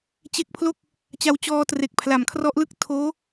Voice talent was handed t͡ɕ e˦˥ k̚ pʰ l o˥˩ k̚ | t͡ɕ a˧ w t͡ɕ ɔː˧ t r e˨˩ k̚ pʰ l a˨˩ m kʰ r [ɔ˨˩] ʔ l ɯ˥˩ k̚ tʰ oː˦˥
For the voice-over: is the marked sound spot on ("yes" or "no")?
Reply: no